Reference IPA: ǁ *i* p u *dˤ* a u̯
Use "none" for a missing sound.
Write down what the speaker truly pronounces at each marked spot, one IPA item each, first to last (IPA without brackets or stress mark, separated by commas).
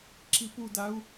i, d